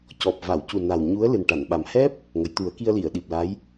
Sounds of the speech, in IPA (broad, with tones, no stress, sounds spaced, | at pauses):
c ɔ˨˩ p̚ v a˨˩˨ w c u˨˩ n a˨˩ w ɲ u˧˥ ə̯ l ɨ˨˩ n ʈ a˨˩˨ n ɓ a˨˩ m h ɛ˦˥ p̚ | ŋ ə˨˩˨ j t̪ u˨˩˦ ə̯ k i˧ ə̯ l i˨˩˨ ə̯ ɗ i˨˩ p̚ l a˧˥ j